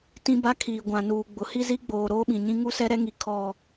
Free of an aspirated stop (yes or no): no